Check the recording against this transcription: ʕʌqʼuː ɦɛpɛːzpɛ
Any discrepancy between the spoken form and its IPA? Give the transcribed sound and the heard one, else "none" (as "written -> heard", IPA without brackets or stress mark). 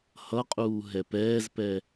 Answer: ʕ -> h